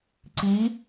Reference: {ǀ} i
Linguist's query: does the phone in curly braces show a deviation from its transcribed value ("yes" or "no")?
no